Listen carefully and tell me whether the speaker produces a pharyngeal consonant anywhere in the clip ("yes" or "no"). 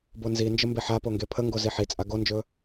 yes